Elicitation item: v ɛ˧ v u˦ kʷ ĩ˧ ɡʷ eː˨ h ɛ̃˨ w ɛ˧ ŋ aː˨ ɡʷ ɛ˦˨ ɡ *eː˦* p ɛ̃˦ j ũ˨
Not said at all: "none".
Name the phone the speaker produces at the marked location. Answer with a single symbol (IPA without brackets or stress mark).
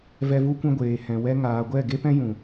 e˦